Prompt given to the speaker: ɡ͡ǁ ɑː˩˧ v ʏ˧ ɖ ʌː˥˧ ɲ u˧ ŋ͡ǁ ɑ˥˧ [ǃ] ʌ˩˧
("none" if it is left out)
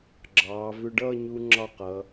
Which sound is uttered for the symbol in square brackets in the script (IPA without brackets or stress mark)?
q